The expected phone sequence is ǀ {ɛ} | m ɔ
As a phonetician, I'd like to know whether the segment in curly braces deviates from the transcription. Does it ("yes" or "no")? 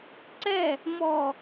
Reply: no